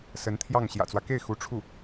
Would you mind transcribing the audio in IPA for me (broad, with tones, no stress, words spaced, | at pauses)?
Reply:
sə˧˥nt̪ʰjɑ˥˩ŋ ɕjä̰˨˩t͡swä˦ke˥˩ɪ̯ xu˧˥ʈ͡ʂʰu˥˩